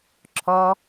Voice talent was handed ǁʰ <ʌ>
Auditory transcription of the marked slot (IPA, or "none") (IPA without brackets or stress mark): ɔ